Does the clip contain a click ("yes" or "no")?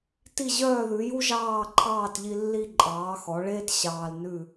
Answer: yes